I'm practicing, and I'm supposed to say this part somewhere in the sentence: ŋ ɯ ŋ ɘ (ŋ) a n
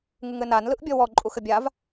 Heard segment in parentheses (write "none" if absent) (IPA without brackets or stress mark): n